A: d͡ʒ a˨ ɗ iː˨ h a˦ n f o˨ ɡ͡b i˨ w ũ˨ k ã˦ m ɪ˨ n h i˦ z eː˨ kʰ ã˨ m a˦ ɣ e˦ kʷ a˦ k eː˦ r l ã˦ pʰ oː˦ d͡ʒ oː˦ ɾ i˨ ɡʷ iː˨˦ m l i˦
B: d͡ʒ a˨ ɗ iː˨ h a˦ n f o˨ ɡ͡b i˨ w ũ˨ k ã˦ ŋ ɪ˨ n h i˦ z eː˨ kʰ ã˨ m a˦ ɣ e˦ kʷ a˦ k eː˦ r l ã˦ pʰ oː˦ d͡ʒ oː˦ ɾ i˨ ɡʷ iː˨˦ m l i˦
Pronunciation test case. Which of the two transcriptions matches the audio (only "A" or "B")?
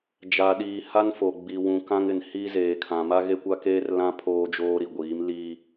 B